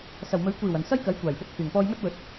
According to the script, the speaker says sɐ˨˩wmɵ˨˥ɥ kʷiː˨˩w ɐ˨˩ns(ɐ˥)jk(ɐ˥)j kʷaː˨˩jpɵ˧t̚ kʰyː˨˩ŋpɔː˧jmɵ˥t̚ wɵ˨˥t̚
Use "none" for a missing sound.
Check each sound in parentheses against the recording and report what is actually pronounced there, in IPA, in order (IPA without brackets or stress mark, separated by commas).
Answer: ɐ˥, ɐ˨˥